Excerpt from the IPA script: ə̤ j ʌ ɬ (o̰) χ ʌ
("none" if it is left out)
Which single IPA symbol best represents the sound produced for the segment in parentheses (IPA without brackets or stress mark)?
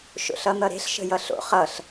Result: o̰